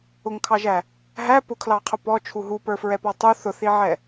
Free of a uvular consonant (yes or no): no